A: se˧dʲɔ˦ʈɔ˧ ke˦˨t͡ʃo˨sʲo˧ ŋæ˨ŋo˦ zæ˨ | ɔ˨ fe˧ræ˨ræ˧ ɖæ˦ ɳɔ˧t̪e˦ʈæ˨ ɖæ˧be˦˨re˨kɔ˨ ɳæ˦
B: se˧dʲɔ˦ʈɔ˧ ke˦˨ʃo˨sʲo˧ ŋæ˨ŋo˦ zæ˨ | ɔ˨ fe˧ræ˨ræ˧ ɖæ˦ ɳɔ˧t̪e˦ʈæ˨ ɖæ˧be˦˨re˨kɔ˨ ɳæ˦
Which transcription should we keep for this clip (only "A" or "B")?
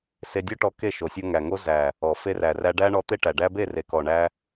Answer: B